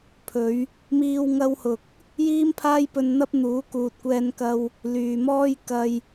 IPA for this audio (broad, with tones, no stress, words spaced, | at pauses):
pʰɵ˨˧ɥ | miː˧wŋɐ˧whʊ˨k̚ | jiː˥mpʰaː˥jpɵ˧nn̪ɐ˥p̚ n̪uː˨˥kuː˨t̚kʷɛː˧nkɐ˧w | lyː˨mɔː˥j kɐ˧j